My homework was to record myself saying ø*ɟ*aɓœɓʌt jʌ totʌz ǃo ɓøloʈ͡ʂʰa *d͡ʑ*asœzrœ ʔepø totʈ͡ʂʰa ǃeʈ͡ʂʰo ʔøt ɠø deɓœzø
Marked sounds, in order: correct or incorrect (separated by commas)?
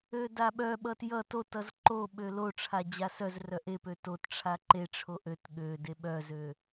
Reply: incorrect, correct